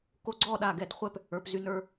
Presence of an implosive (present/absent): present